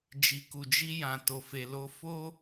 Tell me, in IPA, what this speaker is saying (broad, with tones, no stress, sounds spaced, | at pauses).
d͡ʒ i˨ k u˨ d͡ʒ i˧ j ã˨ t o˨ f e˨ l o˧ f o˦